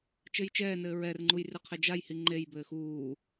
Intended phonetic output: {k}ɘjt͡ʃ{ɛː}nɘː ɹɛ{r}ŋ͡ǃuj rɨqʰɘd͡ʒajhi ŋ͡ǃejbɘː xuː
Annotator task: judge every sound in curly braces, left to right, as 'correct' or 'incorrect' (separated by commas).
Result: incorrect, correct, correct